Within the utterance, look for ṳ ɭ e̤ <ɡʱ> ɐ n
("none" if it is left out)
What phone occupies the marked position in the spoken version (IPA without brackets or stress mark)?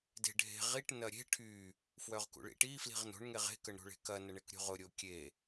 k